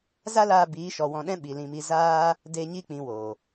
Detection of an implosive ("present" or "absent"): present